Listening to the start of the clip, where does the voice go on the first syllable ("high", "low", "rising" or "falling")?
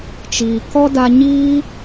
low